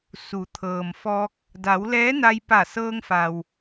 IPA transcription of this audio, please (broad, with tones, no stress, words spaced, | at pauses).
su˩˧t̪ʰɤː˩mfɔː˧k̚ | da˩˧wlɛː˧˥na˧j pa˧˩sɤː˧ŋ fa˩w